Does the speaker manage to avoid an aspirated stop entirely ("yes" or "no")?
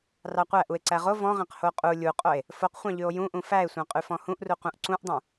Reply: yes